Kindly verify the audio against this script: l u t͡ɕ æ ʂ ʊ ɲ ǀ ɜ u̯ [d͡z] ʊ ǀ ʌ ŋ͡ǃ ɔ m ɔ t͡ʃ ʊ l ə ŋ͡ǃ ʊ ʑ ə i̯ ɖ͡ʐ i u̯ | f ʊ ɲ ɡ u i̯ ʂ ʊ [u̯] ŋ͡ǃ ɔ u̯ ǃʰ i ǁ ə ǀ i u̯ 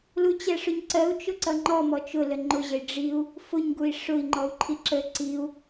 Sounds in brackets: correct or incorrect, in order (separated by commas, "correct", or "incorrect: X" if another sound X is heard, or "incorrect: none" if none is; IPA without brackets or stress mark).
incorrect: t͡ʃ, incorrect: i̯